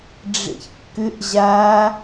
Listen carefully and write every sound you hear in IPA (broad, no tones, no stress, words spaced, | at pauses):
ɖ͡ʐḛçkːʏʔ ʑa